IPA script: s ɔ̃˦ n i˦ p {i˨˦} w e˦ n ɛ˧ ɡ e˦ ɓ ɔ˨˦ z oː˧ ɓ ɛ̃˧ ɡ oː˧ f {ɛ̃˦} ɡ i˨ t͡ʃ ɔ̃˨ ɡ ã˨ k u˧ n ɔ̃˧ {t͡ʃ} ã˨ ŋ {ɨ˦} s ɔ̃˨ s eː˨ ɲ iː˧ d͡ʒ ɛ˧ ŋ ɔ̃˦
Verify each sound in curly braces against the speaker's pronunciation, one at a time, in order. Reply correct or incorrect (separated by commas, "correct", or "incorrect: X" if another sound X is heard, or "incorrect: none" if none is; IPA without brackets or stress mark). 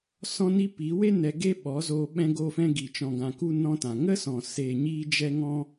correct, incorrect: ɛ̃˧, incorrect: t, incorrect: ə˦